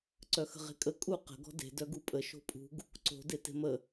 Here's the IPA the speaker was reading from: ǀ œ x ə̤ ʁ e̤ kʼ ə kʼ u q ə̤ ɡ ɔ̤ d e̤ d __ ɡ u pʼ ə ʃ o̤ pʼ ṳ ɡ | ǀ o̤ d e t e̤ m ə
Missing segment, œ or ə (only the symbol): œ